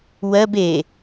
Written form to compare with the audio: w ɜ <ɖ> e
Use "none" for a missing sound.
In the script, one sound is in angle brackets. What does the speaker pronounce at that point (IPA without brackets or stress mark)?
b